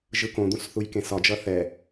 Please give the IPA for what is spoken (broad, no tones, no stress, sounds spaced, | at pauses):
ʒ ɯ k õ d̪ ũ s θ u j k ẽ s ɒ d͡ʒ ʌ θ ɛ